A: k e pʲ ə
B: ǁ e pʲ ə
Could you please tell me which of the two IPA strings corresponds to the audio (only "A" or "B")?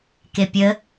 A